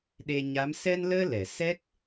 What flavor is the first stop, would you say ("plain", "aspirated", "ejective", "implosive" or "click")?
implosive